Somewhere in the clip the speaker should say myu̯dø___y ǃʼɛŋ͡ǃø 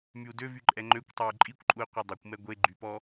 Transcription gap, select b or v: v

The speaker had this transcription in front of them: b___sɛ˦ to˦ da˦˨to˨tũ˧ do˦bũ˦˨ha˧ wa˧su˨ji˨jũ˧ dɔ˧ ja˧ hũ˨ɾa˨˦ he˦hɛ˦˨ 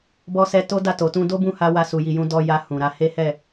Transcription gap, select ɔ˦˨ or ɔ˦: ɔ˦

